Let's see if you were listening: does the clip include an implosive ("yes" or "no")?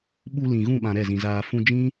yes